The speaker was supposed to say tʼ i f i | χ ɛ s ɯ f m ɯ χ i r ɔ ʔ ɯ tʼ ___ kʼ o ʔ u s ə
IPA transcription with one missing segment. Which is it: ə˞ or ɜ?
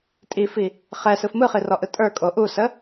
ə˞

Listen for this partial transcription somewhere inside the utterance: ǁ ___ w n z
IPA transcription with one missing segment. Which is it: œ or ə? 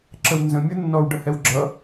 ə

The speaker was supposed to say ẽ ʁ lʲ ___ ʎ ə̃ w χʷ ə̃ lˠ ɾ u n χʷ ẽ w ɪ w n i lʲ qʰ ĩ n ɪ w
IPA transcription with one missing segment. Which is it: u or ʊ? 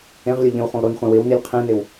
ʊ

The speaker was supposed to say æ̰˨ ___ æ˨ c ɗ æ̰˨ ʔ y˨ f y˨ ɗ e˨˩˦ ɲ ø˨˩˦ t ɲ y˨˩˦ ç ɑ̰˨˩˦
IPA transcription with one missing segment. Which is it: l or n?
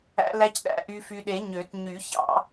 l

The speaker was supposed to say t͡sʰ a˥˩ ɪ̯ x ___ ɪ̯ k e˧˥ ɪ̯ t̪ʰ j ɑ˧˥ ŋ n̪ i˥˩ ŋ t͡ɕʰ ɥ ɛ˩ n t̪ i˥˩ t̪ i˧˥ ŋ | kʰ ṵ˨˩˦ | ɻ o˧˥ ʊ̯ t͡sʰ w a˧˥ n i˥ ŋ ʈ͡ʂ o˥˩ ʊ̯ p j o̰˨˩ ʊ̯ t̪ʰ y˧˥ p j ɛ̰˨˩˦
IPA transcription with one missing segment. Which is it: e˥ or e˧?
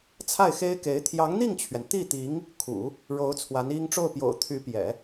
e˥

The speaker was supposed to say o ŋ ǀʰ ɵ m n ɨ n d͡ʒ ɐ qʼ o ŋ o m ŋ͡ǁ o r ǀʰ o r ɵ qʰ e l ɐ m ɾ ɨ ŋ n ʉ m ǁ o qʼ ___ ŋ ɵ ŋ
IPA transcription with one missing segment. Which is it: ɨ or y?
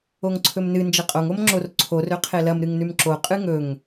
ɨ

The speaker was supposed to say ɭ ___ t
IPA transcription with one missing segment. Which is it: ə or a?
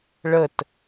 ə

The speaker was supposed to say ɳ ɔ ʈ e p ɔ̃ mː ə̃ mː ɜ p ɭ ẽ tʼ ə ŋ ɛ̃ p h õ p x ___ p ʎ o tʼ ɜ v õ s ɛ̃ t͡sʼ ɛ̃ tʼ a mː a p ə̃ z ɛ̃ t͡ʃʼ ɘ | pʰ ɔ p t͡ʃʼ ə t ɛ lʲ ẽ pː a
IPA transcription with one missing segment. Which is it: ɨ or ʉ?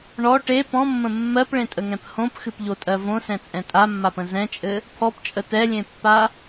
ɨ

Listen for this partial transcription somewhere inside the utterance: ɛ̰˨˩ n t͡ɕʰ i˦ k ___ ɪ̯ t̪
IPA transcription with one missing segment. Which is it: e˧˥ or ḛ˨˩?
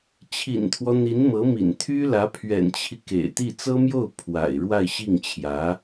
ḛ˨˩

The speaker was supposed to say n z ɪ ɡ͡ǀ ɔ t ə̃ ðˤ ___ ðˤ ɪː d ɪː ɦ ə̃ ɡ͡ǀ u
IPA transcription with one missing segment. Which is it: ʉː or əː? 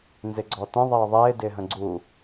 əː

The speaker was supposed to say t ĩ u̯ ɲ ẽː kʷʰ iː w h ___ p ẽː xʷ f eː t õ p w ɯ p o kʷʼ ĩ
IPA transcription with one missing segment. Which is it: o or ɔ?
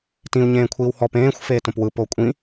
ɔ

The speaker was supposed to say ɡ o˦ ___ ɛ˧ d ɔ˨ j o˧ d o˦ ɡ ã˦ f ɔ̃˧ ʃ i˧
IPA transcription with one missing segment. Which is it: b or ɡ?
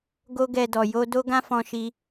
ɡ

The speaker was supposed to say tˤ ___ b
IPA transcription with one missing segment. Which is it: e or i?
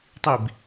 i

